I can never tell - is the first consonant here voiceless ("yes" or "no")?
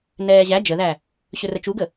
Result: no